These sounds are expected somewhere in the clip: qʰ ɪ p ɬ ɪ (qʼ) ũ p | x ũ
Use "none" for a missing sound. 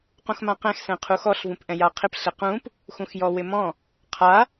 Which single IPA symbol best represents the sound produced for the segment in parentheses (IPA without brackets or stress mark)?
q